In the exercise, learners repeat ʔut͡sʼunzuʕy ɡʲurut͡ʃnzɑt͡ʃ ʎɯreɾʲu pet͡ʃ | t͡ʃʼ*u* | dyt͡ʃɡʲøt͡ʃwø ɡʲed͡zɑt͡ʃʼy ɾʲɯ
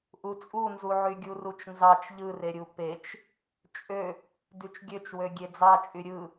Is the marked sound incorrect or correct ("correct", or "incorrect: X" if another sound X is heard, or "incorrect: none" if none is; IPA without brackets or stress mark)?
incorrect: ø